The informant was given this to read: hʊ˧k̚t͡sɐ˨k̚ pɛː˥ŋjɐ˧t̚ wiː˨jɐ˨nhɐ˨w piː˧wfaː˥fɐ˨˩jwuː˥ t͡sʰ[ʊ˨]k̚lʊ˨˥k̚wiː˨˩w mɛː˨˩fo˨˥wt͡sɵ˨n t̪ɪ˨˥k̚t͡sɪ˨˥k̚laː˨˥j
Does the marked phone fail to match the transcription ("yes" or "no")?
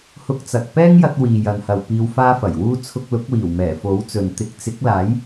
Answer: yes